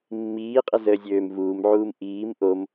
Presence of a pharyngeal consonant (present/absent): present